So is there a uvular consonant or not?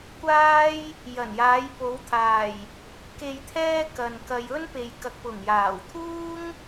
no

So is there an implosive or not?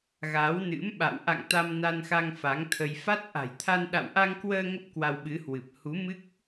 yes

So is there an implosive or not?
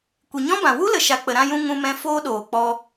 yes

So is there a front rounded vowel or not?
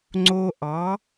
no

